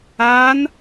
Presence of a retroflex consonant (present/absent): absent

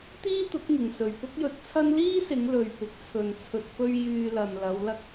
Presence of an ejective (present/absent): absent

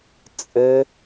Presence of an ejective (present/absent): present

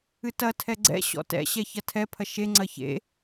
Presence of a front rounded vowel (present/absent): absent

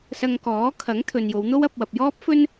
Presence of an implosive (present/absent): absent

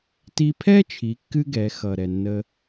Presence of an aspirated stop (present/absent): present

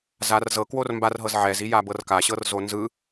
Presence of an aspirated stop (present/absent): absent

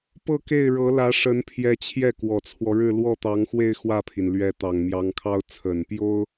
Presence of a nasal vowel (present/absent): absent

